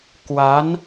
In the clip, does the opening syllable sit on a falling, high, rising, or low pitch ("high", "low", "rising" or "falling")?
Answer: rising